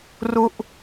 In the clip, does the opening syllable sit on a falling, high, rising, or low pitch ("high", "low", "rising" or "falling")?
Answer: falling